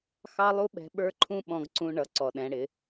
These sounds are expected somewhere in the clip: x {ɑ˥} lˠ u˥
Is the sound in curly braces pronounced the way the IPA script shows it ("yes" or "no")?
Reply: yes